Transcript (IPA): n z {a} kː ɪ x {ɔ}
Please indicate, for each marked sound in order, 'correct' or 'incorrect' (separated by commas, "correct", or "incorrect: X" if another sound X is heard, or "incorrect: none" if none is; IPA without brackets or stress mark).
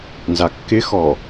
correct, correct